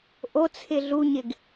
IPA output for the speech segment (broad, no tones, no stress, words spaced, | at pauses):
ʔot͡sʰɪ ɮuɲɪɡ